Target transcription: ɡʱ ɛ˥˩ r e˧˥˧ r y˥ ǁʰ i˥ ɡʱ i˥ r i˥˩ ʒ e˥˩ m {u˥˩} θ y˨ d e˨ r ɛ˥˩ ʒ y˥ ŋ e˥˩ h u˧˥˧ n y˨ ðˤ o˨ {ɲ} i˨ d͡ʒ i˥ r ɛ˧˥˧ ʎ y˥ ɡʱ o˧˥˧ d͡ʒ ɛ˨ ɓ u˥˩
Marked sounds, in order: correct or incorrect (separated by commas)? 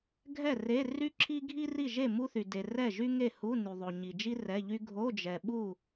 incorrect, correct